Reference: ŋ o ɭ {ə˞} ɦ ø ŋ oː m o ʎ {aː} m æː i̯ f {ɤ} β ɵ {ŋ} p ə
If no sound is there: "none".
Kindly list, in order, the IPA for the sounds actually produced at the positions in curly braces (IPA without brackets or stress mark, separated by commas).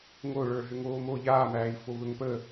ə˞, aː, o, ŋ